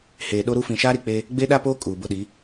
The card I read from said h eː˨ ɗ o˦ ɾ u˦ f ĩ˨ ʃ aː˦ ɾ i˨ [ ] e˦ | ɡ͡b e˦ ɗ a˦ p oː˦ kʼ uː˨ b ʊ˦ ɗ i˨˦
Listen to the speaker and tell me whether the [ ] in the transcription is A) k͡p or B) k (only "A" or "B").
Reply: A